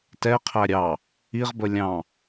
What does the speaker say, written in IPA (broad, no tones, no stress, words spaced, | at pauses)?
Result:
tɛqʰæ ɾʲɑ | iʁbə lʲɑ̃